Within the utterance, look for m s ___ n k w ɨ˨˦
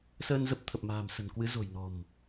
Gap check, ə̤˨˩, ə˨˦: ə̤˨˩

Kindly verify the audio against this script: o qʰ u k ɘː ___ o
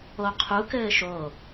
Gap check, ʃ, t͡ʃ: ʃ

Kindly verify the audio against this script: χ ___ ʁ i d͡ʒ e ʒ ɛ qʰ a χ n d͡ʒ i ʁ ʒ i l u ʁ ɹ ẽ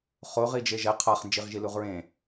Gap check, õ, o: o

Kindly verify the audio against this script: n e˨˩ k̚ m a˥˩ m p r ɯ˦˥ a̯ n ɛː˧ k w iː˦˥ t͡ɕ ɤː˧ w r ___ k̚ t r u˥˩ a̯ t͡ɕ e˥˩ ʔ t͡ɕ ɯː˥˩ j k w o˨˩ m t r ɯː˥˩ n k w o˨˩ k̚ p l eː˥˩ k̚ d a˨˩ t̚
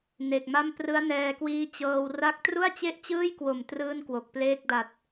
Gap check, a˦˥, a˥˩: a˥˩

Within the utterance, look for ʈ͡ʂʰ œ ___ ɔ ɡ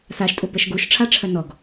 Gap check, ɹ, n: n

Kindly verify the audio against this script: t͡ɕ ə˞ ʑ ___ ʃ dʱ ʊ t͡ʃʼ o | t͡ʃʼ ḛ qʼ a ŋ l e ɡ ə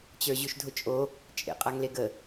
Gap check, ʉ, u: ʉ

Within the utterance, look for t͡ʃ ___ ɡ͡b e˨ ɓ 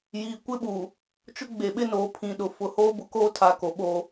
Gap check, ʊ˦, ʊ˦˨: ʊ˦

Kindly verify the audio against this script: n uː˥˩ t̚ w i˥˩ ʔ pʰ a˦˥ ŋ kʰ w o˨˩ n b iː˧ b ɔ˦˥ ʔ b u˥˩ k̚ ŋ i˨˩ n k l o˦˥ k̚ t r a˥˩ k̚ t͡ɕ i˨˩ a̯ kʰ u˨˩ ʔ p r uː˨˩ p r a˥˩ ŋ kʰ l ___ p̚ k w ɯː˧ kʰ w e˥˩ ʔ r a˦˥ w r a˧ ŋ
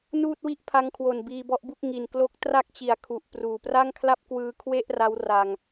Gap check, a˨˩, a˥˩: a˥˩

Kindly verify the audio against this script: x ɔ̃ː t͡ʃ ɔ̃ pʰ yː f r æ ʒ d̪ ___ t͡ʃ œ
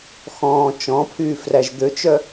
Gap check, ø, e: ø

